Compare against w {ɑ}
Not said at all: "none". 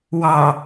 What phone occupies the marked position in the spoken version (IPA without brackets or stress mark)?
ɑ